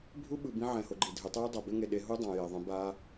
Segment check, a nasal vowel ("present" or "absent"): present